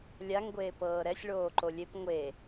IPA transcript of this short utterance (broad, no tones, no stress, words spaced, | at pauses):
lʲaŋ ɡʷeːpɤːɾɛsʲ ɭoːǃolʲep ŋʷe